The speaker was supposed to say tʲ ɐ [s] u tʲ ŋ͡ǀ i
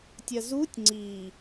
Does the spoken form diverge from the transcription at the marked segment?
yes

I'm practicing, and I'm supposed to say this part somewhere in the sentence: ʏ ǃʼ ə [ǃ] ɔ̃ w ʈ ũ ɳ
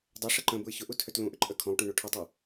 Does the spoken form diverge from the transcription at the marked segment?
yes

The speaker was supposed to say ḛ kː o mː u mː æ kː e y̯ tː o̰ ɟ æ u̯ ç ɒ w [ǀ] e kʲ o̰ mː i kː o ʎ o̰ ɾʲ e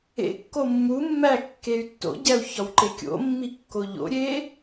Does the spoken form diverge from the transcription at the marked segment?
yes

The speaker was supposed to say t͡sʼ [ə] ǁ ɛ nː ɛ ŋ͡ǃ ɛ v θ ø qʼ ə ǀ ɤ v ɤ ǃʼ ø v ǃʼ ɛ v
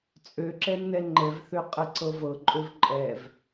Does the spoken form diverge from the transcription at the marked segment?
yes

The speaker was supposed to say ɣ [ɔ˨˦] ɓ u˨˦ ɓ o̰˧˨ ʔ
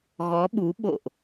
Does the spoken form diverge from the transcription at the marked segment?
no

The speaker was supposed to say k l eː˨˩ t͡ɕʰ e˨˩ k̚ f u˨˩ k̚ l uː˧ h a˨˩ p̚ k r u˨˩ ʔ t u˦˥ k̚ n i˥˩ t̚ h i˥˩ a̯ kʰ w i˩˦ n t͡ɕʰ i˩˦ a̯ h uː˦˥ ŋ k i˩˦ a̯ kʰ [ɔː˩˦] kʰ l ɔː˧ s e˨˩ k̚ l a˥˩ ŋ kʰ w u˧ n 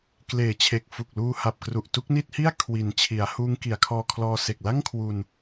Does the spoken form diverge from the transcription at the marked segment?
yes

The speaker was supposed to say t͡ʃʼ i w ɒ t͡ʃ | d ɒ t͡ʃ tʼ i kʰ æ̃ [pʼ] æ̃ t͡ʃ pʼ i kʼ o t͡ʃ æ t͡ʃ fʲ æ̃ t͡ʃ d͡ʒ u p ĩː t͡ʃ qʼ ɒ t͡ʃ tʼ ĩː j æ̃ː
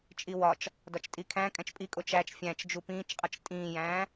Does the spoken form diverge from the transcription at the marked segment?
yes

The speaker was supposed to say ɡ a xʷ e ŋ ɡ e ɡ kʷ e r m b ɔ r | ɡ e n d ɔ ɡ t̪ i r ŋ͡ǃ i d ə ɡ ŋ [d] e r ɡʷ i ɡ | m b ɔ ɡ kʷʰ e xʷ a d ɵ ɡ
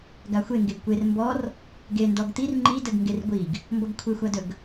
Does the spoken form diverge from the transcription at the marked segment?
yes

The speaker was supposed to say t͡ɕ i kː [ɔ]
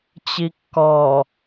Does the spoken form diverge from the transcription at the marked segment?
no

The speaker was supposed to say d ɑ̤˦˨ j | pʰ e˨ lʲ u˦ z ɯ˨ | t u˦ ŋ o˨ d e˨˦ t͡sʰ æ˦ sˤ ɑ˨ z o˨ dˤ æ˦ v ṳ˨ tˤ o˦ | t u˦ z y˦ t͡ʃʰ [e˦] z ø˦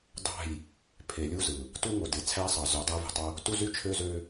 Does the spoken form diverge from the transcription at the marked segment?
yes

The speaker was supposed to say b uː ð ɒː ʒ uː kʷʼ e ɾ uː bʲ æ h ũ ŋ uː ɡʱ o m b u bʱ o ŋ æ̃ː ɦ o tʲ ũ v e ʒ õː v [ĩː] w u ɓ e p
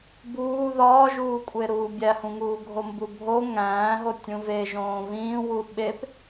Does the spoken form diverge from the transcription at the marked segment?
no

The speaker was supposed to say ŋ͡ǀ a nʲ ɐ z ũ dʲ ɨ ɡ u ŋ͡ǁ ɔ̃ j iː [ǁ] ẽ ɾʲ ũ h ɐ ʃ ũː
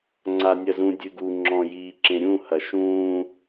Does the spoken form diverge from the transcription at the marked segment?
no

